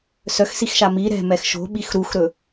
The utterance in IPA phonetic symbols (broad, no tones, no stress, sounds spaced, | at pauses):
s œ x s i x ʃ a m i ɾ ɛ̤ m ɛ x ʃ o̤ ɓ i x ɾ u x ɾ ɵ